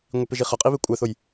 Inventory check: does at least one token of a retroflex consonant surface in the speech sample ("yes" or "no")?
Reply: no